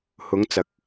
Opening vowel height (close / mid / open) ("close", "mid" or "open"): close